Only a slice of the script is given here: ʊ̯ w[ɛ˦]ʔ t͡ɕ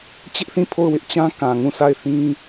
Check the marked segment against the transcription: incorrect: ɪ˦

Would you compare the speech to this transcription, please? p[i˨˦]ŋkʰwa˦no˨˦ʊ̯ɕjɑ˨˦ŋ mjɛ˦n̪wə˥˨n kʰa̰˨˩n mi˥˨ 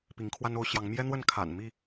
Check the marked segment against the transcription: correct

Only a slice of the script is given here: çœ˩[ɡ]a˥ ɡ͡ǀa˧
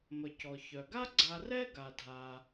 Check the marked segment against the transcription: correct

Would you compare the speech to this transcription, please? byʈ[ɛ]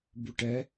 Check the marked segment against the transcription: correct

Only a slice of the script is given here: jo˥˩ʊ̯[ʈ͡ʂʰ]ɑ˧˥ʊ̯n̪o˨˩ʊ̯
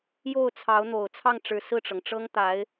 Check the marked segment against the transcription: incorrect: t͡sʰ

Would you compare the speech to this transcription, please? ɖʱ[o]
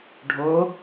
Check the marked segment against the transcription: correct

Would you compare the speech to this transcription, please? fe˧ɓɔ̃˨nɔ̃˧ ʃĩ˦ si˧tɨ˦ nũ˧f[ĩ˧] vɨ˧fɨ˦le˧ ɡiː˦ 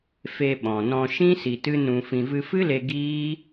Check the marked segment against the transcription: correct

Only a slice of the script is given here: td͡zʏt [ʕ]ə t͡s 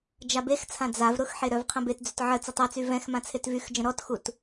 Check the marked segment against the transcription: correct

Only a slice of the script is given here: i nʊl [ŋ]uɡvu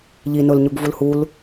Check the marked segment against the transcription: incorrect: ɲ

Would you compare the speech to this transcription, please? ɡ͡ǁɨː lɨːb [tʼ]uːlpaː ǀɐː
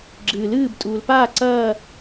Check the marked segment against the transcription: correct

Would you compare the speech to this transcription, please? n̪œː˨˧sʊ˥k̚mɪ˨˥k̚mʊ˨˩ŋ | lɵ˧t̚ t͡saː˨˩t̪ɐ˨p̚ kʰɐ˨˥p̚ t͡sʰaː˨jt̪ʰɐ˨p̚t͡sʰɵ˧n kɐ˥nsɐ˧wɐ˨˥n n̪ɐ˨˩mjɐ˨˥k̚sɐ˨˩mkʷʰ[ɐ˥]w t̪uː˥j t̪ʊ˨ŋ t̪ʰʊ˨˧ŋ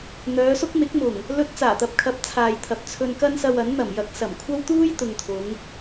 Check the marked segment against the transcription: correct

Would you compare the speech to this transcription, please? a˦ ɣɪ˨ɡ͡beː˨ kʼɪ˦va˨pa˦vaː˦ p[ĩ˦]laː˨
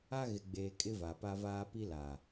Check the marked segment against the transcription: incorrect: i˦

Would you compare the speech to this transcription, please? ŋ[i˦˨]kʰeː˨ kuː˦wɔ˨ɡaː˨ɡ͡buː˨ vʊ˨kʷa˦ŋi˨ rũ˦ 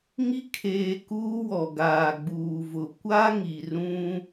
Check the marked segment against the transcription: incorrect: i˦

